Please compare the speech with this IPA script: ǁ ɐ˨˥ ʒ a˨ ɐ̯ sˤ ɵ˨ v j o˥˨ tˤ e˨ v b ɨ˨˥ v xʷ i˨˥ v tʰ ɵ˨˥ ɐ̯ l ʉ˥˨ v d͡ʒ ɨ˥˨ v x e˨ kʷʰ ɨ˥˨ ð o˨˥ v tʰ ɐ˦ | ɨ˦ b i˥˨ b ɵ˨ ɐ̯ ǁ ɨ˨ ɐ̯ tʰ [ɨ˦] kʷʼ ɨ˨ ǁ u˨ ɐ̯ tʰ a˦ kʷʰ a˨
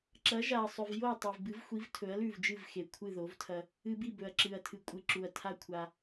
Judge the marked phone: incorrect: ɨ˨˥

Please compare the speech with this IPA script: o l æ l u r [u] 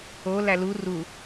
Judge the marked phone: correct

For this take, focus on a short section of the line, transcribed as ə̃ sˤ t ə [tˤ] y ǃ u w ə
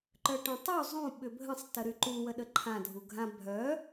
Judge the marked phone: incorrect: ɾ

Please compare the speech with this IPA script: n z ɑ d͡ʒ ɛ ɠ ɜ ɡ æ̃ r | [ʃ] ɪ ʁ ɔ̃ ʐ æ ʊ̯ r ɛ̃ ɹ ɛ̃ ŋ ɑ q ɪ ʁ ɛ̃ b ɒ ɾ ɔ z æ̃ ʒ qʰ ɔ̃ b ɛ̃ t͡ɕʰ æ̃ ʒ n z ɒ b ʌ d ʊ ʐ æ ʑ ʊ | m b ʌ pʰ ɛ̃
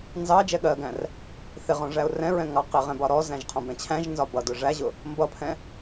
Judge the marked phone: incorrect: θ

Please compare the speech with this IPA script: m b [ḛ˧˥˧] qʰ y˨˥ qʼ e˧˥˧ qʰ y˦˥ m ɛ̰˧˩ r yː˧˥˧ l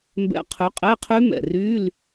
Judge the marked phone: incorrect: ɛ̰˧˥˧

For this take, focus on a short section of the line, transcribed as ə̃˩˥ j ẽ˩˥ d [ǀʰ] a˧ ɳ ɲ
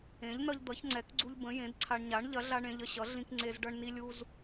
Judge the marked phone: correct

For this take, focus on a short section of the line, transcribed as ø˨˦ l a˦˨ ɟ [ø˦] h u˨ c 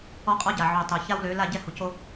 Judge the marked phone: incorrect: ɛ˦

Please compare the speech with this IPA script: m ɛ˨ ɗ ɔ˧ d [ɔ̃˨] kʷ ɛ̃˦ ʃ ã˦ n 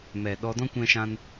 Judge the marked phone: incorrect: ɔ̃˦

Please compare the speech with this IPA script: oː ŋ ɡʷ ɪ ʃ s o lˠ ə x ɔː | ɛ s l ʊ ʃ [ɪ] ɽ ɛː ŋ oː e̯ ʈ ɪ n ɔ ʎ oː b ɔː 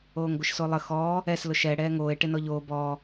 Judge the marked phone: incorrect: ɛ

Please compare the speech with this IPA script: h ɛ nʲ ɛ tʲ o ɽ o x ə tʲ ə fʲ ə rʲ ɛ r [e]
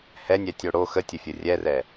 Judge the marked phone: incorrect: ɛ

